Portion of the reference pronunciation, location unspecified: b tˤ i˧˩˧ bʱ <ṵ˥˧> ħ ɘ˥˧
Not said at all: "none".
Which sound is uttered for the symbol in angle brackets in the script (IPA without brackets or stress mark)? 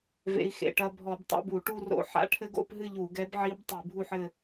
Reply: u˥˧